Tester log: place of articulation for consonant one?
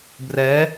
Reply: labial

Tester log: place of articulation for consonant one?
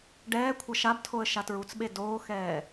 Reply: retroflex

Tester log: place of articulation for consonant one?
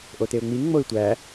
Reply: glottal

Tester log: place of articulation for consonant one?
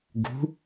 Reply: velar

